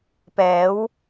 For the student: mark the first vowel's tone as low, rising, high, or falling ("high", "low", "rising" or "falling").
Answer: rising